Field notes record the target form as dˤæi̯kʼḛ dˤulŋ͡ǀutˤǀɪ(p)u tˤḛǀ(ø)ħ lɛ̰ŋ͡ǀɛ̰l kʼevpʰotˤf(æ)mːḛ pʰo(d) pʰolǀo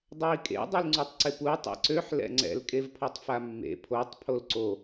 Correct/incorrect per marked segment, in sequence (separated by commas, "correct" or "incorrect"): correct, correct, incorrect, incorrect